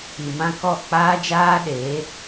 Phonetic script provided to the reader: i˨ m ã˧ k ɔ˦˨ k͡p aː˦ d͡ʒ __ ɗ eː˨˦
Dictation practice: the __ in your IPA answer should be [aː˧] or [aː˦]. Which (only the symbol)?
aː˦